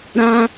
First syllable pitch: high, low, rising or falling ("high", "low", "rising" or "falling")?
high